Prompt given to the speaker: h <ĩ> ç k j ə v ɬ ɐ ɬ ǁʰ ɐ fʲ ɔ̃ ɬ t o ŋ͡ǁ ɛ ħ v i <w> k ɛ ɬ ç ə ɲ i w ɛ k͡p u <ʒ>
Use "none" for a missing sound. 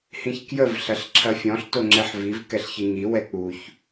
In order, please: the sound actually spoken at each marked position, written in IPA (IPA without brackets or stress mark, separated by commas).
ĩ, v, ç